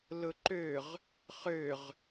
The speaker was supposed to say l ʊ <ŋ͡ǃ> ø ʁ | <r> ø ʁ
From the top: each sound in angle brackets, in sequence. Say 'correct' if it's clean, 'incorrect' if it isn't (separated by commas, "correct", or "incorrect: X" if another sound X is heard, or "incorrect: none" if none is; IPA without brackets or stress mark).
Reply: incorrect: ǃ, incorrect: χ